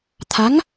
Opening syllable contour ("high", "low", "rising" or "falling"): rising